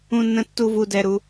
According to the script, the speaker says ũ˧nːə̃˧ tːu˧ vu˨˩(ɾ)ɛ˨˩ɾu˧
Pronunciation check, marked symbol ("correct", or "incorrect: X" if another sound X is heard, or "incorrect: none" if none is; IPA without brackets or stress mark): incorrect: d